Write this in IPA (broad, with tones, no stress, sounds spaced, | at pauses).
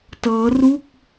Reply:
t ɤː˦˥ r u˥˩ k̚